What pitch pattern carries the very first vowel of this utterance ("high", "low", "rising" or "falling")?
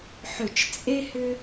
falling